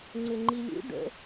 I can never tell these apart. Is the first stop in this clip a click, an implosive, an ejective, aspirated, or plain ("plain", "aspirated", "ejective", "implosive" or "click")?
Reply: click